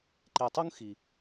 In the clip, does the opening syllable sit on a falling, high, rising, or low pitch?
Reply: low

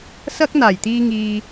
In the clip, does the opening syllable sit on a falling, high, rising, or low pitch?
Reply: high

